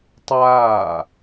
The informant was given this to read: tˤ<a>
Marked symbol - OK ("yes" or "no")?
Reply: no